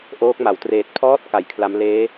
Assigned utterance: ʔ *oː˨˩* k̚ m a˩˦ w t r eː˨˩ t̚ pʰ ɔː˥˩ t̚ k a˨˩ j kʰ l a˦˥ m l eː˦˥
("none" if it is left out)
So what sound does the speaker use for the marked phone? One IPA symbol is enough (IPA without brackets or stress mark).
oː˦˥